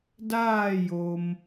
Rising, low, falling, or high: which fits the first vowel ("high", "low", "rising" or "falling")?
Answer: falling